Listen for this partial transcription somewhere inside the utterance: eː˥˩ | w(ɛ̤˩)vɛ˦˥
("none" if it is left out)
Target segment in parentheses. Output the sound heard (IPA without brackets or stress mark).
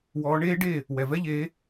ɛ˩